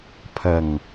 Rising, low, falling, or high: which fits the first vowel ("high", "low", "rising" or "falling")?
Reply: low